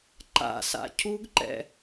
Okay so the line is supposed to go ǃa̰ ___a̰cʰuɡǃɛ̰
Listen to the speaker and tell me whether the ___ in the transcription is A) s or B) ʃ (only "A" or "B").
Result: A